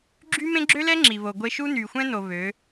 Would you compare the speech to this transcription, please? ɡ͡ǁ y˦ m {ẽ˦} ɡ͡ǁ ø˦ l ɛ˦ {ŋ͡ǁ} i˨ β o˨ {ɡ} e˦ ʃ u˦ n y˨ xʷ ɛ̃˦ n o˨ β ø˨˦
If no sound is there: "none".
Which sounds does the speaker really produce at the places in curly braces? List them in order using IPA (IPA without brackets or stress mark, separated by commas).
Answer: ẽ˦, ŋ͡ǁ, ɡʷ